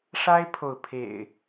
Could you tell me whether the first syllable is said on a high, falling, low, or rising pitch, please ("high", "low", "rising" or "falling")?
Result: high